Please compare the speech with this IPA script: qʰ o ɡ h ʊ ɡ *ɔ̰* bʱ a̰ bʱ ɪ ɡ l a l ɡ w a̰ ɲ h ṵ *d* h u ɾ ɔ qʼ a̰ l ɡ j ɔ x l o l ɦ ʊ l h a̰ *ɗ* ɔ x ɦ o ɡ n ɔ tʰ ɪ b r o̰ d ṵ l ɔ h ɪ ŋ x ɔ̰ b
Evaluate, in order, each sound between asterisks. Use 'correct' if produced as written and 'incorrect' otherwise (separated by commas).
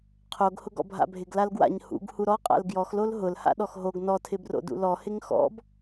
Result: correct, incorrect, correct